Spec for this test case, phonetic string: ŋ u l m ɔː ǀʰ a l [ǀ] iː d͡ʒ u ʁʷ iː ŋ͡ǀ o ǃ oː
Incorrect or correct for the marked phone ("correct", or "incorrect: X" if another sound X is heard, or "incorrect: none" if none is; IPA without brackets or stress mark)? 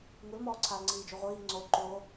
incorrect: ŋ͡ǀ